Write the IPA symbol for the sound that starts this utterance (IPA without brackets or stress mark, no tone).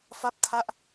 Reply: f